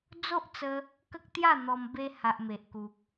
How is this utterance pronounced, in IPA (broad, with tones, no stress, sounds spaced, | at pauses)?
d͡z o˦ ʔ t͡s ə˧ | k ə˦ k̚ t̪ j a˥˧ n̪ ɔ˧ m b e˧ h a˨ ʔ m e˨ ʔ k u˨ k̚